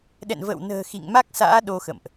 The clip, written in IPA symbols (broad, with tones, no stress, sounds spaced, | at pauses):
ɗ ɛ̰˧˨ n v ə̰ː˧˨ w n ə̤ː˨˩ x ḭ˧˨ ŋ m a˦˥ k̚ s a̰ː˧˥ ɗ o˧ x ə̰˧˨ m ʔ